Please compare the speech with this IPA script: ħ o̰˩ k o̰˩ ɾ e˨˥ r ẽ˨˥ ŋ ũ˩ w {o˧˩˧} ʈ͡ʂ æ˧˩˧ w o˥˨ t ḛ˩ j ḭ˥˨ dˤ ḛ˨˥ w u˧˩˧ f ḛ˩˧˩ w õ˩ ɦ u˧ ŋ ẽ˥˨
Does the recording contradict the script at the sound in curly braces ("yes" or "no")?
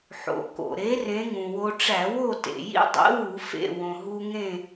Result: yes